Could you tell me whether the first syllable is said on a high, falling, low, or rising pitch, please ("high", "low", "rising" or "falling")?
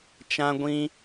high